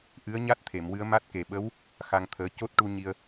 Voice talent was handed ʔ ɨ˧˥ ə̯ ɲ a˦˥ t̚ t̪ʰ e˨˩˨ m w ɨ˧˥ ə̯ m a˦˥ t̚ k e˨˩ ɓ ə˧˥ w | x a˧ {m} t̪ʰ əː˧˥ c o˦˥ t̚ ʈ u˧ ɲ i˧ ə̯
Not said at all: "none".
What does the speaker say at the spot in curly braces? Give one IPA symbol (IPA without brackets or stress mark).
ŋ